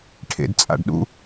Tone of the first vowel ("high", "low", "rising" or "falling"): low